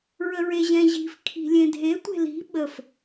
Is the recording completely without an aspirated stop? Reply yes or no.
no